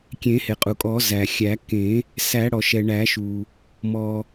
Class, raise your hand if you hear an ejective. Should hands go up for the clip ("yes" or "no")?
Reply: yes